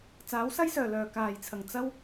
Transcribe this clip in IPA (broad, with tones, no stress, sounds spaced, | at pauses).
t͡s aː˨˥ w s ɐ˥ j s œː˨˩ l œː˨˩ k aː˨˩ j t͡sʰ ɐ˨˩ ŋ t͡s ɐ˥ w